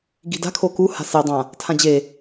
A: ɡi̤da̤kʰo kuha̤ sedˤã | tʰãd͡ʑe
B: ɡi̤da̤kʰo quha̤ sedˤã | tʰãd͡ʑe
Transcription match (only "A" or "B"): A